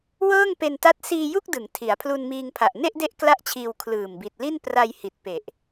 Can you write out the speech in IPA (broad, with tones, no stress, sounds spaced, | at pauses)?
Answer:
w ɤː˥˩ ŋ p e˧ n t a˦˥ t̚ s iː˧ j u˥˩ k̚ d ɯ˩˦ ŋ tʰ i˩˦ a̯ pʰ l u˧ n m iː˧ ŋ pʰ a˨˩ ʔ n e˥˩ ʔ d e˦˥ ʔ k l a˥˩ ʔ t͡ɕʰ iː˧ w kʰ l ɯː˨˩ m b i˨˩ t̚ l i˥˩ n p r a˧ j h i˨˩ t̚ p e˨˩ ʔ